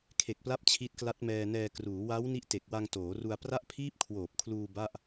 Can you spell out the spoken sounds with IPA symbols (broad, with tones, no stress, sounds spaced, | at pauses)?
kʰ e˨˩ k̚ p l a˦˥ p̚ t͡ɕʰ i˦˥ t̚ k l a˦˥ t̚ m ɛː˧ n ɛː˧ k r uː˩˦ w a˦˥ w n i˦˥ ʔ t e˨˩ k̚ w a˧ ŋ t oː˩˦ r u˧ a̯ p r a˥˩ ʔ pʰ iː˥˩ p̚ kʰ w oː˨˩ p̚ kʰ l uː˧ b a˥˩ ʔ